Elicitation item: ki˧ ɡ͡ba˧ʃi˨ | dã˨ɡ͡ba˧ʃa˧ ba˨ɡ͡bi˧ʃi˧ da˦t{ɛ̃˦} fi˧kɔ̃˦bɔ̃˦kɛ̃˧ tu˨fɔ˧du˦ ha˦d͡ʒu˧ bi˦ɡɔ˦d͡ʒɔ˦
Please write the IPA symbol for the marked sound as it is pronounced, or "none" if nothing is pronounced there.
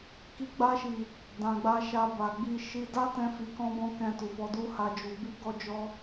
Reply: ɛ̃˧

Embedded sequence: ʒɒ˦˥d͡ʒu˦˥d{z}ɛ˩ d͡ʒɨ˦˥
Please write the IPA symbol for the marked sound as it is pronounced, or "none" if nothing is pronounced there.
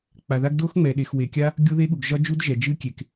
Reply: ʒ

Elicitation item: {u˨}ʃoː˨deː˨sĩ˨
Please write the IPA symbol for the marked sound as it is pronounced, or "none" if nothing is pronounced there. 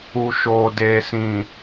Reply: u˨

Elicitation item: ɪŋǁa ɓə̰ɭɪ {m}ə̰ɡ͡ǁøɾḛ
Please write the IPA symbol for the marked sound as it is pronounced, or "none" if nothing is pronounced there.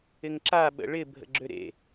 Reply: bʱ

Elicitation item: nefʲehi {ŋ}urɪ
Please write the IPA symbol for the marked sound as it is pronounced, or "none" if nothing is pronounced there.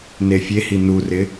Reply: n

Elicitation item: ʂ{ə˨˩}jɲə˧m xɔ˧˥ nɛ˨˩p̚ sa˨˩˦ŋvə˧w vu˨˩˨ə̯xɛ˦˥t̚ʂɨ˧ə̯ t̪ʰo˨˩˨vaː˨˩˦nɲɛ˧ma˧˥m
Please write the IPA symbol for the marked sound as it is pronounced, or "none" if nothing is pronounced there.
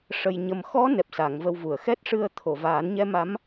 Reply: ə˧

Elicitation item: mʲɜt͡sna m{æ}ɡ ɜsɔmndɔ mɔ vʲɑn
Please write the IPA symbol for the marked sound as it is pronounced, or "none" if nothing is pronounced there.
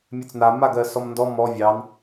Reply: a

